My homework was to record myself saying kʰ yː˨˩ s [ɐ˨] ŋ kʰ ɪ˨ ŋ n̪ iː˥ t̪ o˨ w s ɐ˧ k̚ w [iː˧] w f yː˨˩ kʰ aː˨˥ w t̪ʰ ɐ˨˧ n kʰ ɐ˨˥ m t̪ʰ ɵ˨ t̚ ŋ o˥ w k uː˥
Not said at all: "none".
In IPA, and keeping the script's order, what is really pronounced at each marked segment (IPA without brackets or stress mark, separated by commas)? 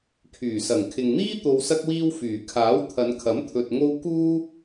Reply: ɐ˨˩, iː˧